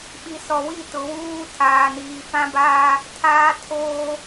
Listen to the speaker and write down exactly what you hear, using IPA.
ɓi˨sɔ˨wi˦˨ tʊ˨wuː˦ tʰaː˨niː˨fã˦baː˦ | tʰaː˦tʰoː˦

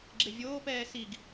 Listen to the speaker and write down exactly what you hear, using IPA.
ɡ͡ǁevʲoːpɛː siɡ

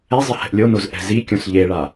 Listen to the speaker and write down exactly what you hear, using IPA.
ɛzˤɪ hɛ̤ʔlʲonoz ʔɛ̤zikʲõs ʎeɭa

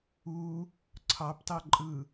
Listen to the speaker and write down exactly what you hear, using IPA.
u | ǀʰɑptɑ ǃʼɯ

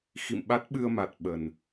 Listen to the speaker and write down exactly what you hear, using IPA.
xḭ˧˨m ɓa˦˥t̚ɓɨ˧ə̯ma˨˩t̚ ɓə˨˩n

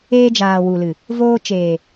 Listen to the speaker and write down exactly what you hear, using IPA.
eː˧d͡ʒaː˨ wu˨lɨ˨ | voː˧t͡ʃeː˨

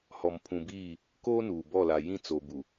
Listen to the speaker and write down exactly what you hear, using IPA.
hɔ˨m pʰũ˨biː˦˨ | koː˦nuː˨bɔ˦˨ la˨ jĩ˦˨t͡so˨bu˨

